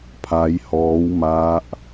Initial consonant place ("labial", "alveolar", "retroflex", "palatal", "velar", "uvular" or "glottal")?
labial